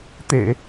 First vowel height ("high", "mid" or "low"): mid